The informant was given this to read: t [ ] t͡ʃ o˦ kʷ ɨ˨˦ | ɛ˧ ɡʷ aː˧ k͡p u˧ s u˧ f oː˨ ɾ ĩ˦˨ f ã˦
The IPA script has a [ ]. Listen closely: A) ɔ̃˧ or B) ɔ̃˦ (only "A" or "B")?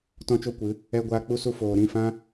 B